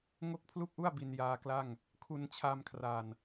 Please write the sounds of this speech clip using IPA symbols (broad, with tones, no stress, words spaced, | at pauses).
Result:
ŋo˥˩k̚pʰlu˥˩k̚ʔu˥˩a̯ bi˧njaː˧kla˥˩ŋ | kʰu˧nt͡ɕʰa˧mkʰra˨˩n